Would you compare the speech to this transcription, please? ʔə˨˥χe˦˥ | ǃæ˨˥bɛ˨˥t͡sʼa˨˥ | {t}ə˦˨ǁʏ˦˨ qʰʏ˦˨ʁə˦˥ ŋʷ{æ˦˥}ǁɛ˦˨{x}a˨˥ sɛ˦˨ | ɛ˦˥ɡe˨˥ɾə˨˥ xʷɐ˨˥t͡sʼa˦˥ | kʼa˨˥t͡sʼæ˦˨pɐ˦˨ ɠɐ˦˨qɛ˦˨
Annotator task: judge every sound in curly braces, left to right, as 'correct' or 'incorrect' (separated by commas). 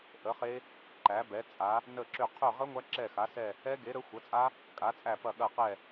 incorrect, correct, correct